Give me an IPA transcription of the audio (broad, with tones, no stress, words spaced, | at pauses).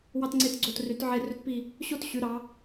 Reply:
wɑ˧tŋ͡ǀe˧˩t ɡ͡ǀo˧˩try˩˧t ʕe˧˩rø˧tpi˧˩ | ɕo˥˧t ɕy˩˧ɾɑ˩˧